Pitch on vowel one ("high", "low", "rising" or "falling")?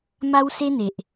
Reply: high